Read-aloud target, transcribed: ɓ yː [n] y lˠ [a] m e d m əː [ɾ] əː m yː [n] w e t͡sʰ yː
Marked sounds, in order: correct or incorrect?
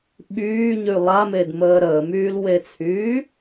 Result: incorrect, correct, correct, incorrect

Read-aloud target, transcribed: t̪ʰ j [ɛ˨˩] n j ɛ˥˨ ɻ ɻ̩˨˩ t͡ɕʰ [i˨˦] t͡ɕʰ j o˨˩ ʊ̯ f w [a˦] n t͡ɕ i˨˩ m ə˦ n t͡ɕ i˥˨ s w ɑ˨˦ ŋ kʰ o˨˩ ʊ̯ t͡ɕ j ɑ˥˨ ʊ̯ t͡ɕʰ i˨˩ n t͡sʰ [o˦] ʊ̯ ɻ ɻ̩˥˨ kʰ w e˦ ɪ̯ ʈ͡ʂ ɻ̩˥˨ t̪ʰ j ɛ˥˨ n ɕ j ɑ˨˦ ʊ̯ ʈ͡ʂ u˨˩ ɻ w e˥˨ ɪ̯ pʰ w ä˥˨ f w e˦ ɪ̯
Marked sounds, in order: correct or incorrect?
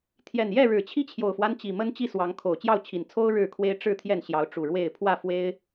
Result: correct, incorrect, correct, correct

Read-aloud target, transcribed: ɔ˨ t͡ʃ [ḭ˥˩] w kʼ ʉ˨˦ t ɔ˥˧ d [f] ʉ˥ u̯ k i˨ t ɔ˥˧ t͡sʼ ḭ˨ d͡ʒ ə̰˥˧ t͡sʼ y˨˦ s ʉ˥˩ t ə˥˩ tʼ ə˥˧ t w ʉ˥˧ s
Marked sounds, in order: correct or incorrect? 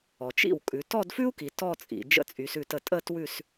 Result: correct, correct

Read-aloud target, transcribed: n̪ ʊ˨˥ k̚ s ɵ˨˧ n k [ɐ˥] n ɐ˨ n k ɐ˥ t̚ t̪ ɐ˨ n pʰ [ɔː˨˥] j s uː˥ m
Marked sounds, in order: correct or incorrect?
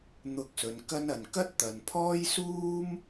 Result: correct, incorrect

